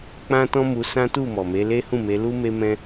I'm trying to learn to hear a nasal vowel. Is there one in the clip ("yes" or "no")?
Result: yes